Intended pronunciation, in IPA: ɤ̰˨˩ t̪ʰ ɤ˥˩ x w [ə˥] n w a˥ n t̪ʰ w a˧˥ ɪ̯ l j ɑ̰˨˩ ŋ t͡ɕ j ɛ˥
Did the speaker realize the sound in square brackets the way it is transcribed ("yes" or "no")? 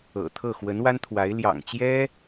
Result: no